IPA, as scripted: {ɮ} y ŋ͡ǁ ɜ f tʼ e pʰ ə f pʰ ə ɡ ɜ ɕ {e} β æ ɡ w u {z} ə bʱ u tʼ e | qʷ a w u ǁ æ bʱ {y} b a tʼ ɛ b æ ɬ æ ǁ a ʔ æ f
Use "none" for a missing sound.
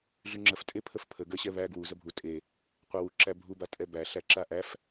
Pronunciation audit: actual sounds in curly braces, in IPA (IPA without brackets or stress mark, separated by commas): ɮ, ɛ, z, u